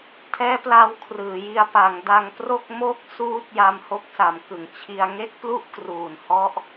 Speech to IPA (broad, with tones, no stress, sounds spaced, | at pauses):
tʰ ɛː˦˥ p l a˧ w kʰ r ɯː˩˦ j i˧ a̯ p a˩˦ ŋ d a˧ ŋ p r o˥˩ k̚ m o˥˩ k̚ s uː˦˥ t̚ j a˧ m h o˦˥ k̚ s a˩˦ m k ɯ˨˩ ŋ t͡ɕʰ i˧ a̯ ŋ e˥˩ k̚ p l u˥˩ ʔ k r uː˨˩ n h ɔ˦˥ ʔ